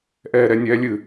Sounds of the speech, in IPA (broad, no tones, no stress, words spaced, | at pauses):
ʔɛːɾɛnʲɛːlʲɨ